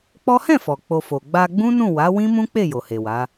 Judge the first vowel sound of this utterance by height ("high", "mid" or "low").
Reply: mid